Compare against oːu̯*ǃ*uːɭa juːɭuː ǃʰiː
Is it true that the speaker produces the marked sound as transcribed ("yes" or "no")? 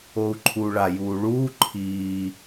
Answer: no